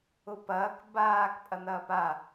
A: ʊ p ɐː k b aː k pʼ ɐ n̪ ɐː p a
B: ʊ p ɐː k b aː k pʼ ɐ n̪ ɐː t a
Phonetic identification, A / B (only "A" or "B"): A